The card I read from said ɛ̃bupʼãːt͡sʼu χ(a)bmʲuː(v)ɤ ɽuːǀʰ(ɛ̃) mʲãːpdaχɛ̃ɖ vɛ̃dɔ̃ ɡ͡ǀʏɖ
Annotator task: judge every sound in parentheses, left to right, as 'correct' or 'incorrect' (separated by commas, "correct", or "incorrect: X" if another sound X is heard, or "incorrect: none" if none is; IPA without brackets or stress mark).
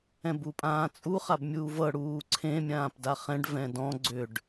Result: correct, correct, incorrect: ẽ